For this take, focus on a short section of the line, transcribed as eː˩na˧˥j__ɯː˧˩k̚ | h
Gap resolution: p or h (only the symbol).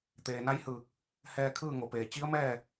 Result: h